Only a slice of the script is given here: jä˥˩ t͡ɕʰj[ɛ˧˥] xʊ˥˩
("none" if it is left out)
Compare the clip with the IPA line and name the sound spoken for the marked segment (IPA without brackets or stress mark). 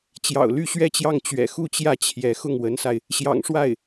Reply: ɛ˧˥